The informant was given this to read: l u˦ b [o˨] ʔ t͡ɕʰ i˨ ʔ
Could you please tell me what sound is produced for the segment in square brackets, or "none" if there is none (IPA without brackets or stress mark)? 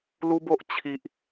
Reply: o˦